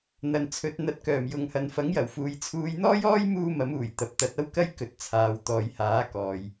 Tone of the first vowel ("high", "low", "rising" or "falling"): low